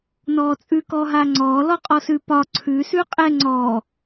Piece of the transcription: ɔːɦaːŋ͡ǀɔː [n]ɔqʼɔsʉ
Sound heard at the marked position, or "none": l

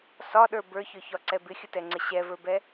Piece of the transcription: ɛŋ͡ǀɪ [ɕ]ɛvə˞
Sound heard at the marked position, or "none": ɕ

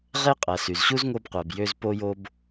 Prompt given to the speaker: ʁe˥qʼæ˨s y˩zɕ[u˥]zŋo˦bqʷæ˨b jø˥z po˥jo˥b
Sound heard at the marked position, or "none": u˥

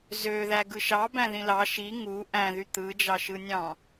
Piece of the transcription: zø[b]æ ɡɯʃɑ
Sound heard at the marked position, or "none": ð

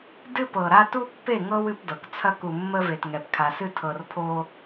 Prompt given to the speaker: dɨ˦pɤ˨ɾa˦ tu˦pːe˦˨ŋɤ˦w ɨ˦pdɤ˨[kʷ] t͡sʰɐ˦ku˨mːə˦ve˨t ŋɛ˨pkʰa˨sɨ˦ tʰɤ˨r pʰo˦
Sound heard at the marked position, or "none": k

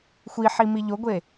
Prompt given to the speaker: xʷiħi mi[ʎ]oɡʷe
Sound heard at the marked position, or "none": ʎ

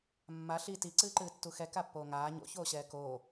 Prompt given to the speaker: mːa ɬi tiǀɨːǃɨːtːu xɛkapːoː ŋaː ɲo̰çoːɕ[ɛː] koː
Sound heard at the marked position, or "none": ɛː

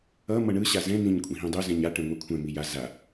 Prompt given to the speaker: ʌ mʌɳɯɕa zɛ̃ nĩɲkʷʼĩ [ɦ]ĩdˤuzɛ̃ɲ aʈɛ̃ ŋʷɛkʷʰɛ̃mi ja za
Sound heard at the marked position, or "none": ɦ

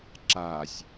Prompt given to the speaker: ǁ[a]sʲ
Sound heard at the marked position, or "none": a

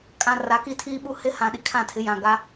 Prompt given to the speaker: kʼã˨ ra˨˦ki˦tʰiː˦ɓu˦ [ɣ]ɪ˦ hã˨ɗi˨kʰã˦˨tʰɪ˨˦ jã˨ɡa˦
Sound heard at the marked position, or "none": h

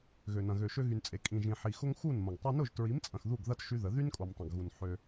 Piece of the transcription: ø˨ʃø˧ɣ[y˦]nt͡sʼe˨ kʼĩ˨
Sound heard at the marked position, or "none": y˨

